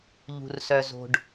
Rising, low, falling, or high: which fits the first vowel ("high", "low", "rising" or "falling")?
low